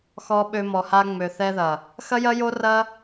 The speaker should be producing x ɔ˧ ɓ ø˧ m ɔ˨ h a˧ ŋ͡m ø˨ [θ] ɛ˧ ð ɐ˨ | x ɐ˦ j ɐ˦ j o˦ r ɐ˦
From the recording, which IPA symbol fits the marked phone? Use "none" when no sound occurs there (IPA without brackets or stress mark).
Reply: θ